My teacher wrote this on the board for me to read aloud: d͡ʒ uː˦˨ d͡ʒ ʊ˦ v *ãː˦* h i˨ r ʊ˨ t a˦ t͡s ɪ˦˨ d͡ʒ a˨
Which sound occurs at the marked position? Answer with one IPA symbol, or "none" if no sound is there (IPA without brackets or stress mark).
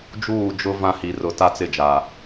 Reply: ã˦